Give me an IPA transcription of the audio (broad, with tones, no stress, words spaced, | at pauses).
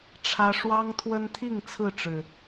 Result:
ʈ͡ʂʰä˦ ʂwɑ˦ŋt̪ʰwə˦nt̪ʰi˥˨ŋ t͡sʰɹ̩˥˨ʈ͡ʂɻ̩˨˩